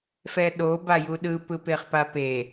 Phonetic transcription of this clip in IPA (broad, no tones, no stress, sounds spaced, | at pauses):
f ɛ ɗ o b a j u ɗ ɯ p ɯ p e χ p a p e